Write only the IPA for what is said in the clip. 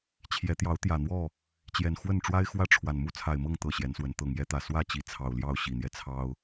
t͡ɕʰ j ɛ˨˦ t̪ j ɑ˨˦ ʊ̯ t̪ j ä˨˩ n̪ w ɔ˥˨ | t͡ɕ j ɛ˨˩ n x w ə˥˨ n ʈ͡ʂ w a˦ ɪ̯ x w ä˥˨ ʈ͡ʂʰ w a˨˩ n m u˥˨ t͡sʰ a˨˩ ɪ̯ m ɤ˥˨ ŋ t̪ ɤ˥˨ ɕ j ɛ˨˦ n s w ə˨˦ n t̪ ɤ˨˩ ŋ j ɛ˦ t̪ ä˨˩ s w ä˥˨ t͡ɕ i˨˦ t͡sʰ ɑ˨˩ ʊ̯ l j ɑ˥˨ ʊ̯ ɕ i˨˩ n̪ j ɛ˦ t͡sʰ ɑ˦ ʊ̯

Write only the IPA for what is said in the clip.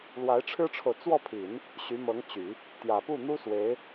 l w a˧˥ ɪ̯ ʈ͡ʂʰ ɻ̩˥ ʈ͡ʂʰ o˨ ʊ̯ t͡s w ɔ˥˩ pʰ i˨˩˦ n | ɕ y˧˥ m ɤ˧˥ ŋ t͡ɕ y˨˩˦ | t̪ j ä˨˩ p u˥˩ n̪ u˥ s w e˧˥ ɪ̯

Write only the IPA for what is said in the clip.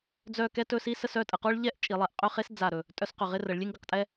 d͡z œ˥˧ k ɛ˥ t ɵ˥˧ s i˥ s ə˥˧ s œ˥˧ tʼ ə˩˧ q o˥ ɭ ʎ ɛ˥˧ ʔ t͡ʃʼ i˩˧ lˠ ɛ˩˧ ʔ qʼ ɵ˥˧ χ e˥ s d͡z a˧˩ ɾ ɵ˧˩ | tʼ œ˥˧ s q ɵ˧˩ ʁ ɪ˥˧ r ə˩˧ ɭ lʲ e˥ ŋ ɡ ə˩˧ q tʼ ɛ˥

